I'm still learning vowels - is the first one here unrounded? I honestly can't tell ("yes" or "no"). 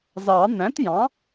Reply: yes